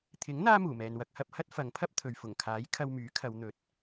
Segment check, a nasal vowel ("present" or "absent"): absent